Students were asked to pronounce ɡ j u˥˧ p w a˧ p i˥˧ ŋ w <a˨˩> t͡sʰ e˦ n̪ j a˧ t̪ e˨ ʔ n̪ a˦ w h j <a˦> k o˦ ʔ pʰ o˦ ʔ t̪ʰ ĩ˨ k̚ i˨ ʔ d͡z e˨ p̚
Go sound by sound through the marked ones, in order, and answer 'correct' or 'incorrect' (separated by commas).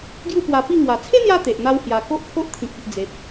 correct, incorrect